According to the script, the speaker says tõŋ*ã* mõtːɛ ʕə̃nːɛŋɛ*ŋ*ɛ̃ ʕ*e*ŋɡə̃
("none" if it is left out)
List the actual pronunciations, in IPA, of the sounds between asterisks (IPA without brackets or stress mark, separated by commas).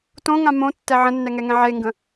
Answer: ã, ŋ, e